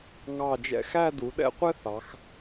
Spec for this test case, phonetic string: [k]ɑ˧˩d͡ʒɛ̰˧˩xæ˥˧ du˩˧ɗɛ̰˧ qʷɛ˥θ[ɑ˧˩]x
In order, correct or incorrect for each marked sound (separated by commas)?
incorrect, incorrect